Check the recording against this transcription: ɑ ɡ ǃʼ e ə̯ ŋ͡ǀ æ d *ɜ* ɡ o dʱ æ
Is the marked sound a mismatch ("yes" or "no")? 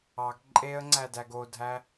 yes